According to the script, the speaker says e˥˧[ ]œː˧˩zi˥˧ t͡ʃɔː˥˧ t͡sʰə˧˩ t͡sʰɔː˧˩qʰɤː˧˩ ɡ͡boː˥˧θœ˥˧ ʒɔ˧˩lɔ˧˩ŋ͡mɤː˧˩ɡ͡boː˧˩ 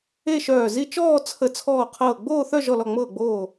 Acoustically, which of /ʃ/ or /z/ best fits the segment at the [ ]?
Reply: ʃ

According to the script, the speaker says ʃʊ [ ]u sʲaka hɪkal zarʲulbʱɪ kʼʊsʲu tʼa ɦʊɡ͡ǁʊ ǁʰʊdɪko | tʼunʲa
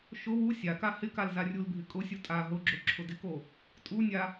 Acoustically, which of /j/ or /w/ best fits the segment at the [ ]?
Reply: w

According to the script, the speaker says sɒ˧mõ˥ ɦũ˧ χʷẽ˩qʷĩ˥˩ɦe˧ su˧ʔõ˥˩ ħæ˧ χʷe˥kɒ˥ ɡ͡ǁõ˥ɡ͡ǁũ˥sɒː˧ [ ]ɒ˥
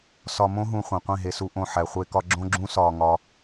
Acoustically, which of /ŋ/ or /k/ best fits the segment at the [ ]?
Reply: ŋ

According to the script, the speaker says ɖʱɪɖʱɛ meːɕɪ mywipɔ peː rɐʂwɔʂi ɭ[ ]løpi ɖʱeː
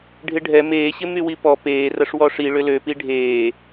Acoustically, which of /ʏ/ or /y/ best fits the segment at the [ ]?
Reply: ʏ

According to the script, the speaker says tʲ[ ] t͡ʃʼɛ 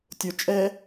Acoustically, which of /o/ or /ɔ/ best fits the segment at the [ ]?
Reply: o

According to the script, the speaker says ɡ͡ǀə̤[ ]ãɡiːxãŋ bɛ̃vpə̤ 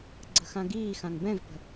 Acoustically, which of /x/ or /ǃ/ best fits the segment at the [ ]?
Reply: x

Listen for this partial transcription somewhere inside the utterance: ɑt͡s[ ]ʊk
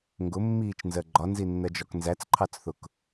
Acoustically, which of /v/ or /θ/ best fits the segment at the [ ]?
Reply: θ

